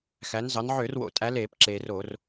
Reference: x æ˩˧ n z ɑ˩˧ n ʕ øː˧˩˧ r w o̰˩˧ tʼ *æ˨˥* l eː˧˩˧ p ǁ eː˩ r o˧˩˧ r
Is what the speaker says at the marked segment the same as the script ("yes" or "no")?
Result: yes